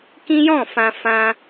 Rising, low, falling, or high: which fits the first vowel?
high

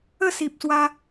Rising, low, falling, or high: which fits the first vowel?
falling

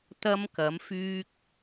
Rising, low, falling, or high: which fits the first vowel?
high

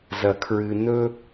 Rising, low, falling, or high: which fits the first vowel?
low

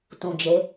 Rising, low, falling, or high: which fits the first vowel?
low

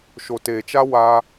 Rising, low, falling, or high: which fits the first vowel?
low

